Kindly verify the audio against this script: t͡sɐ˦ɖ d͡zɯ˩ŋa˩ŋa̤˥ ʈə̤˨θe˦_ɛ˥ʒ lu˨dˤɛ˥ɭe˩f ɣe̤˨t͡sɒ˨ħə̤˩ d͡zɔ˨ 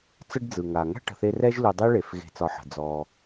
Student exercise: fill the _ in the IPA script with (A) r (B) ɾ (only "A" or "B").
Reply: A